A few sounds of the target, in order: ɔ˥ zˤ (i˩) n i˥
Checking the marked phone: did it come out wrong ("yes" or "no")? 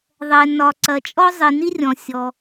no